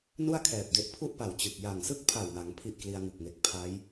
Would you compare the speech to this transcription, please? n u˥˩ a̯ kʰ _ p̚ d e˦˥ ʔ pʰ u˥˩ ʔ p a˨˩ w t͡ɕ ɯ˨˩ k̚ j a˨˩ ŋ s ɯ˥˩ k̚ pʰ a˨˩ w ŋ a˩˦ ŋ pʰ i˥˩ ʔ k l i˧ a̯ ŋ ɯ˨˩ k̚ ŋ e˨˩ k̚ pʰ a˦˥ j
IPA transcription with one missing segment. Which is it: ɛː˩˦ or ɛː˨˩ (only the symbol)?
ɛː˨˩